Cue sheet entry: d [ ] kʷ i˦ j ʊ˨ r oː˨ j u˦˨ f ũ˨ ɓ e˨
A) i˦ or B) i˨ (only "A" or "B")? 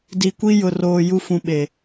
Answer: B